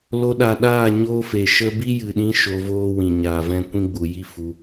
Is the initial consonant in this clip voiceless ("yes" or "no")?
no